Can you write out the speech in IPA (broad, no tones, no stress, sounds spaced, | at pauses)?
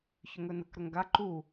ç ʏ ŋ ɵ n ə k ɾ ɵ ŋ ɡ a ǃ u